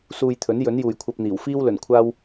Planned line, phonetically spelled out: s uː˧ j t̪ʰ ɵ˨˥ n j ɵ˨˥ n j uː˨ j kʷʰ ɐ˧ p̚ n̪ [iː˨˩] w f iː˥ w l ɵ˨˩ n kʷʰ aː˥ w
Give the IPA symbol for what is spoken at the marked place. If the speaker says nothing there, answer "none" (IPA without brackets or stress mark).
iː˨˩